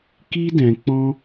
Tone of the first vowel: high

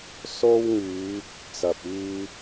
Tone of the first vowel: high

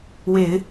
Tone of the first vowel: low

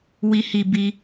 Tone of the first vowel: low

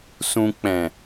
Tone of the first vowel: low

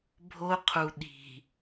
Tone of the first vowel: high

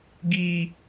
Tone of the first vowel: high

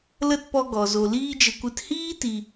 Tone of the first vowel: falling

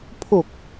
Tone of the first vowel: low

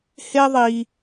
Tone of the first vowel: high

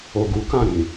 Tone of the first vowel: low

